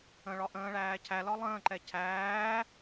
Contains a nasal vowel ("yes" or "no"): yes